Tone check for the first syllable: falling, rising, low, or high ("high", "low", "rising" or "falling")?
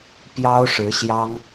high